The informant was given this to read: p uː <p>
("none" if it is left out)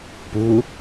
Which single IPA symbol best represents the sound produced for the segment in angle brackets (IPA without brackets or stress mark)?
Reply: none